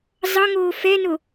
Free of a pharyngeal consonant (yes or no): yes